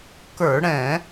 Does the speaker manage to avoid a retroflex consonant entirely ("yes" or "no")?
no